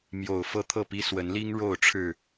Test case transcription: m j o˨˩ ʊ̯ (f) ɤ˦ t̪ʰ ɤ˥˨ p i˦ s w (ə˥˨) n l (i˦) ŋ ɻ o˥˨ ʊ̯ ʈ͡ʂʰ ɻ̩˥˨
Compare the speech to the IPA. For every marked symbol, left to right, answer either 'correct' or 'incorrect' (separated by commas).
correct, incorrect, correct